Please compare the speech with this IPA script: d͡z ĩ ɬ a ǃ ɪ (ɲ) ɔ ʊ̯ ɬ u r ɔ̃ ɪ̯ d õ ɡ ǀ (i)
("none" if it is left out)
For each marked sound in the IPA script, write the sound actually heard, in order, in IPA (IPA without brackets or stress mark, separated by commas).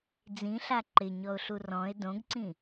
ɲ, ĩ